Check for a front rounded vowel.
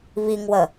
absent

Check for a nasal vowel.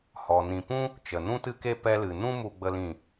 present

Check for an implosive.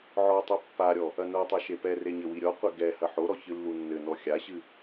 absent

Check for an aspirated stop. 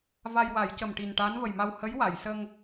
absent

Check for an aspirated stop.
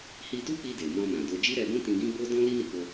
absent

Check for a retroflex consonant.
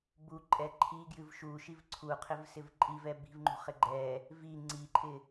absent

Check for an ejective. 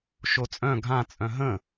present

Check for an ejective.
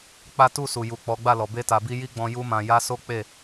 absent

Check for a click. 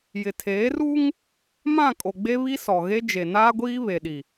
absent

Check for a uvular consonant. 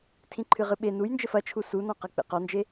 present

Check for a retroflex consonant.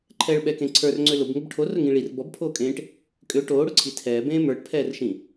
present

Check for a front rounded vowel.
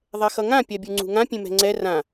absent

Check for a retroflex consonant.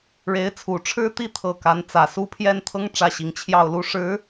present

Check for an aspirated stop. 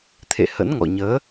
present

